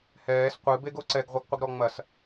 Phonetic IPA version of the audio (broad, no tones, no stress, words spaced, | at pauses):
hɛːs qʷɨ beɡoǀɛɡ ʁʷɛɡqʷəɡɾɔŋ͡mɐs